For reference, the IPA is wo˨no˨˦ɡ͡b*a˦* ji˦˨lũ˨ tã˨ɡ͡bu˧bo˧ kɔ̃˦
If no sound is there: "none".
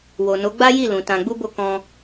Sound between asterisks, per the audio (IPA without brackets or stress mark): a˦